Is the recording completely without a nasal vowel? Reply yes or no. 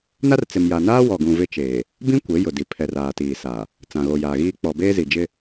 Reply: no